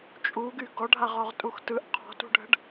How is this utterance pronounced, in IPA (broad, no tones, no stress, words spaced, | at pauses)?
t͡ʃʼuɡy ɡɔɖʱaʁɔʁtʼux tɯʔ qʰɔ̤tṳɖʱə̤ɖ